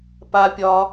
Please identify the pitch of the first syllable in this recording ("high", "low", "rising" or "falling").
low